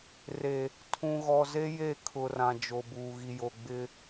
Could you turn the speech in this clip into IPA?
re˨ | tʰũ˨ɣɔ˨ze˦ je˦˨kʰʊ˨rã˨ d͡ʒo˨buː˨ ɣi˨jo˨ ɡ͡bɪ˦

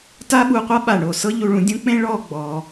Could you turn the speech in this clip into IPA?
ta˥ɓu˧qʷa˥ɓa˧˩ ɳo˧˩sɤ˥ʎu˧ɭũ˧ dʲũ˥k͡pẽ˥ ɭɔ˥˧ɡ͡bɔ˩˧

